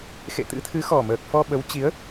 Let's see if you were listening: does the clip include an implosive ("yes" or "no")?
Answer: yes